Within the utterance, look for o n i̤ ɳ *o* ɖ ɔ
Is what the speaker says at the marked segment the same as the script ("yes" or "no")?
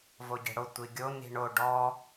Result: yes